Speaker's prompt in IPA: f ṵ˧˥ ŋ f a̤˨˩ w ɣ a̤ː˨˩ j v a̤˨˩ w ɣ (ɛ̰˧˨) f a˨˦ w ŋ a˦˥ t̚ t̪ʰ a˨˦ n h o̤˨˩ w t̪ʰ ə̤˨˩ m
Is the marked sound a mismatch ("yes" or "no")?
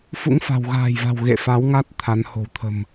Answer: yes